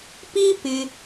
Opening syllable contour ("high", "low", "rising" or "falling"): high